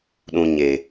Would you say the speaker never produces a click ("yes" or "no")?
yes